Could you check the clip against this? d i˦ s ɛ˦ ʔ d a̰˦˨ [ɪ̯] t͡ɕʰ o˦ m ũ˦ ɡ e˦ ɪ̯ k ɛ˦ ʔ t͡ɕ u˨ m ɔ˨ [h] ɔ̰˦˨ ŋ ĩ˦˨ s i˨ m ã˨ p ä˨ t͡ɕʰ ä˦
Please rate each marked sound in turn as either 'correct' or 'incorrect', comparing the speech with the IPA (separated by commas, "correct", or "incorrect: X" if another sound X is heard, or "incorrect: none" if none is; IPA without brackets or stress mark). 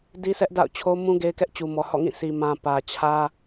incorrect: ʊ̯, correct